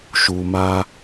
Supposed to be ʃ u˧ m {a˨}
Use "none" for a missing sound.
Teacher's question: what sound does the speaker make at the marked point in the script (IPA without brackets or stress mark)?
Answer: a˦